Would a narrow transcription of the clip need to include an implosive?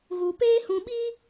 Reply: yes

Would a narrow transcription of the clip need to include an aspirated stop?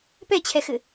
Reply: yes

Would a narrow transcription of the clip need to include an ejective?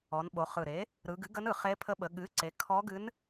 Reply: no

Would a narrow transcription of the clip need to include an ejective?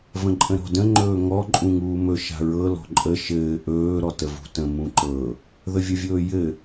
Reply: yes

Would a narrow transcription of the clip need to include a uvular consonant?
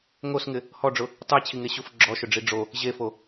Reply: no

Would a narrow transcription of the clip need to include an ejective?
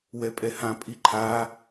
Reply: yes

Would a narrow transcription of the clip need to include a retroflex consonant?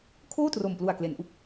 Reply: no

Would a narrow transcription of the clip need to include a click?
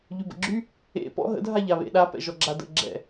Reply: yes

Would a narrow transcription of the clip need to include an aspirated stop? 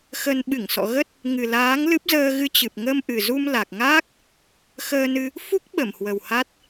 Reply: no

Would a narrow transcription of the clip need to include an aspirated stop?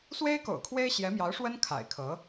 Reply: yes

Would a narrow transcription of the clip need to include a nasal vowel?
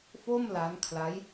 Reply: no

